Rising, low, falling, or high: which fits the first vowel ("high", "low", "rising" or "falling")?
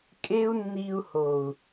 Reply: high